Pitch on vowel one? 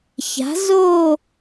rising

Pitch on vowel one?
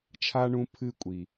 high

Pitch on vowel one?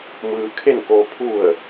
low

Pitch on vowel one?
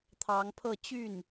rising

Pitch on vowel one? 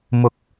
rising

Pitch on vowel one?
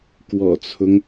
low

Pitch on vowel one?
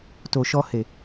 low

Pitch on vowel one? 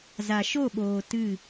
low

